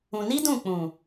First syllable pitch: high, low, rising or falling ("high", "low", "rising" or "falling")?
low